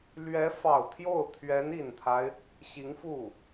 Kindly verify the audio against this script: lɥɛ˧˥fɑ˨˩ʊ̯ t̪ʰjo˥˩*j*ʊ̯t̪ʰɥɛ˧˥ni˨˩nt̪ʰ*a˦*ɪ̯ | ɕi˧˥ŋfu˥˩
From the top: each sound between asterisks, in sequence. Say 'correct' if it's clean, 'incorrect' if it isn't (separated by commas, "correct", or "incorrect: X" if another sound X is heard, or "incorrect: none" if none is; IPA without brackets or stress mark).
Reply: incorrect: none, correct